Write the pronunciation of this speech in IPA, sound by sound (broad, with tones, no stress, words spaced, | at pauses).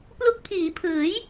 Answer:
plu˦˥k̚pʰiː˩˦pʰɯː˩˦j